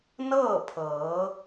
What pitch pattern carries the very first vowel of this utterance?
falling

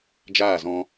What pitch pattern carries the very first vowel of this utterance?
falling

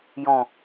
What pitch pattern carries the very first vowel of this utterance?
low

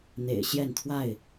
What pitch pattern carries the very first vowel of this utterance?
low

